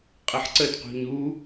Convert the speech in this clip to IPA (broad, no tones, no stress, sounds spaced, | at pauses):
qʼ ə ħ ǀ ə d q ṳ ɲ u